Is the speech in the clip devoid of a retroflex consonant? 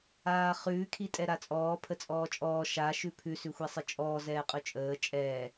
yes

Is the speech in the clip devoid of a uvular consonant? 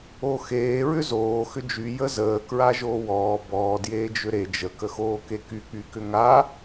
yes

